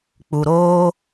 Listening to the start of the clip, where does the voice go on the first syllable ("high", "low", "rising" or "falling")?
low